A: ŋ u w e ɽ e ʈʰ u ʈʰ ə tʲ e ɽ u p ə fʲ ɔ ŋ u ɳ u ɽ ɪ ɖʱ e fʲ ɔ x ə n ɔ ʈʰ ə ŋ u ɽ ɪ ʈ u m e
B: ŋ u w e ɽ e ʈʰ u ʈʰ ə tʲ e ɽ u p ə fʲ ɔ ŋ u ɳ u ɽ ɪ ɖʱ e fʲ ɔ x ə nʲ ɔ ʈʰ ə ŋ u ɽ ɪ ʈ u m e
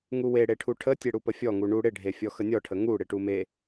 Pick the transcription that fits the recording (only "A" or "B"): B